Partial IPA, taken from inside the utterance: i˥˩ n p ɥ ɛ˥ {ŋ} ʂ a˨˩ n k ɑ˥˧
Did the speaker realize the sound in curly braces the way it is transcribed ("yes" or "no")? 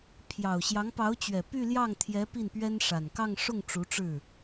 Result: no